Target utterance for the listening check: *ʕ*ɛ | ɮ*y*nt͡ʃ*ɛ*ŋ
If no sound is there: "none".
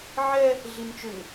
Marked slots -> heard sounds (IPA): ʕ, i, ʏ

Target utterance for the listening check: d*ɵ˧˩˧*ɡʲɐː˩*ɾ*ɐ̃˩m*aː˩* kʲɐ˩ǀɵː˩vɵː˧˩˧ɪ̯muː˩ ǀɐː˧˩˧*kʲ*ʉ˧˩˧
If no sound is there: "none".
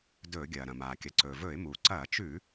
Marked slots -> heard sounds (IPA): ɵː˧˩˧, ɾ, aː˩, t͡ʃ

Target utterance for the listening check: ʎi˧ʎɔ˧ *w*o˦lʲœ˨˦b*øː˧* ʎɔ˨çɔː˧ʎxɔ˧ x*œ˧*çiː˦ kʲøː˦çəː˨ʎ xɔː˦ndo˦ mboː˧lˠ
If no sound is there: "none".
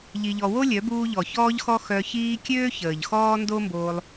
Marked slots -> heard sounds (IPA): w, uː˧, œ˧

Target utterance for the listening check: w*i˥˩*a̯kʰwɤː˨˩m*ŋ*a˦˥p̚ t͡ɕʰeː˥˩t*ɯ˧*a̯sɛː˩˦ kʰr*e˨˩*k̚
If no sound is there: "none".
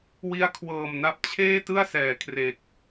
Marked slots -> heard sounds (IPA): i˦˥, n, ɯ˥˩, e˨˩

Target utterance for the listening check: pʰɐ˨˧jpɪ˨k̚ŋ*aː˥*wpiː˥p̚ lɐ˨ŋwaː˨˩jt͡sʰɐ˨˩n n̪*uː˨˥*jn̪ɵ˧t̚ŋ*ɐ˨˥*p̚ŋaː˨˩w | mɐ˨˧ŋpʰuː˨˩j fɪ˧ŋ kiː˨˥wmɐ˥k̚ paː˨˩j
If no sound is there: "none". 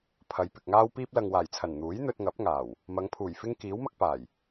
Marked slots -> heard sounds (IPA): aː˥, uː˨˥, ɐ˨˥

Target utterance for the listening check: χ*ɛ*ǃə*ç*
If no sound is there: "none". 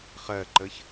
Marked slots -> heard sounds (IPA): ɜ, ç

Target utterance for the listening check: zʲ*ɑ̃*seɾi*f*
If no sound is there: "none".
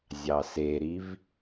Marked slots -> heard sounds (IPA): ɑ, v

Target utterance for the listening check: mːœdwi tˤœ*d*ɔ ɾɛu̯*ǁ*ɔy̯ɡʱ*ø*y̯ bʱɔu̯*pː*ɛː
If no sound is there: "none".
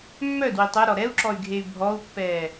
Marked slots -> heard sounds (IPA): ɾ, ǁ, e, pː

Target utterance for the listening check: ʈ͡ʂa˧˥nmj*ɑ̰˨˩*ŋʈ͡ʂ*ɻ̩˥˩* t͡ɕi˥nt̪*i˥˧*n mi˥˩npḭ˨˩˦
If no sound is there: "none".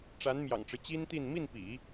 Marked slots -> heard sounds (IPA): ɑ̰˨˩, ɻ̩˦, i˥˧

